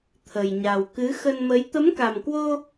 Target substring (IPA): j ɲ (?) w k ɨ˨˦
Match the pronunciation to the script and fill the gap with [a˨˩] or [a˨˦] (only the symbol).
a˨˩